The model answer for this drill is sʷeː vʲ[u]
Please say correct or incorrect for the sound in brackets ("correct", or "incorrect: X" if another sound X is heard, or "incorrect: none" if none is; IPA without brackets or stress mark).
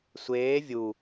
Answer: correct